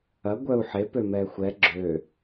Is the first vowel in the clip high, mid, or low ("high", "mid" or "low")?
low